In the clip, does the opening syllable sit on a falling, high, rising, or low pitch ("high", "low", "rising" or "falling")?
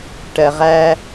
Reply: low